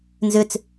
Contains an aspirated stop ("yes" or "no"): no